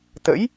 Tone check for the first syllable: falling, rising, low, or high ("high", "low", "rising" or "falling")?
rising